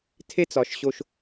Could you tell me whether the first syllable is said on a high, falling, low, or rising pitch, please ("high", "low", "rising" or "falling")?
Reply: high